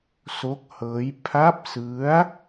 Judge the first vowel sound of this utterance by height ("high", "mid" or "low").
mid